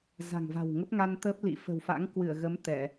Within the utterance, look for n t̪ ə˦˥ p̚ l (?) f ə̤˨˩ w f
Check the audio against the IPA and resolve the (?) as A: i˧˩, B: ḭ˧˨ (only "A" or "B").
B